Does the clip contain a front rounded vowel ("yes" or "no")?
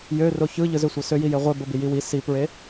yes